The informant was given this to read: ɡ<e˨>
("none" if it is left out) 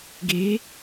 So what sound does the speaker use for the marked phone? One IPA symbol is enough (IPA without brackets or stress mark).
e˨˦